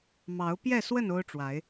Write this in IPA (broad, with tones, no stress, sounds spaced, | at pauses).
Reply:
m ɑ˨˦ ʊ̯ p j ɛ˥˨ s w ə˥˨ n o˦ ʊ̯ ʈ͡ʂ w a˨˦ ɪ̯